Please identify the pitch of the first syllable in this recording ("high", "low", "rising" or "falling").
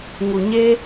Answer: low